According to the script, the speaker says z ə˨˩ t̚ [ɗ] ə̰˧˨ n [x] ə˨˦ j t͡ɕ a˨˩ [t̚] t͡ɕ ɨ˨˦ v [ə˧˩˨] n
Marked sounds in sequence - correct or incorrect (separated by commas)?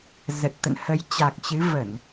incorrect, incorrect, incorrect, correct